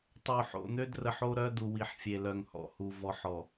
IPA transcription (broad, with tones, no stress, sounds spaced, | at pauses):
tˤ o˨ ħ o̰˨ n̪ ø˦ d r ə˨ ħ o˦ ɾ œ˦ d u˨ w i˨ ħ fʲ e˨ l œ˨ ŋ h ɔ̰˨ h u˨ v ɔ˨ ħ ɔ˨